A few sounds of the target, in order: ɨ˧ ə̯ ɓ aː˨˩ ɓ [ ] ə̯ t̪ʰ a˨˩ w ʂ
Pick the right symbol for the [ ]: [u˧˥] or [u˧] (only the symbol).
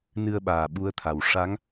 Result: u˧˥